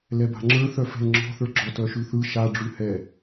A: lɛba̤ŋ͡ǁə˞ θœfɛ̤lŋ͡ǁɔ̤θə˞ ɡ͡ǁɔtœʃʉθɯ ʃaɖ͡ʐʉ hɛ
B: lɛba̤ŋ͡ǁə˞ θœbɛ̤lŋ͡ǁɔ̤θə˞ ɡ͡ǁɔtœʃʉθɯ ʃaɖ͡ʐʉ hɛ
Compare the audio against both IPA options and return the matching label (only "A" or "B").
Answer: A